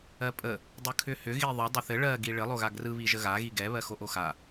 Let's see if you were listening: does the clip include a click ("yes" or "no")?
no